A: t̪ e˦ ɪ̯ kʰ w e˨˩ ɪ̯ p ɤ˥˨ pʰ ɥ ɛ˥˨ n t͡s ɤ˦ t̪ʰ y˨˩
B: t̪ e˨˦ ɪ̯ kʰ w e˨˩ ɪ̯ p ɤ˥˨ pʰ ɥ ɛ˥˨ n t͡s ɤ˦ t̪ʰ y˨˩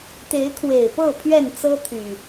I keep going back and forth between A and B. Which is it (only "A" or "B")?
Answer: B